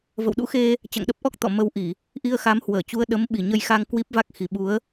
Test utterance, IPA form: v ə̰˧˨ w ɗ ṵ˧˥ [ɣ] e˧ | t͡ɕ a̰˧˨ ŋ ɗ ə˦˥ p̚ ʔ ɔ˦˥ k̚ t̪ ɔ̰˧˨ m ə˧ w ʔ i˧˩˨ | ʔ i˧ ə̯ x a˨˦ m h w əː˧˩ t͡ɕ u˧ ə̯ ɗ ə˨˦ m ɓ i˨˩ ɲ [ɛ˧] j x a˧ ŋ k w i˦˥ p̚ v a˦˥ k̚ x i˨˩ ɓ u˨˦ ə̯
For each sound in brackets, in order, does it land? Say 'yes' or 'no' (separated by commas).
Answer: no, no